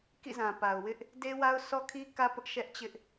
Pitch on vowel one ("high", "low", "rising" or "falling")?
falling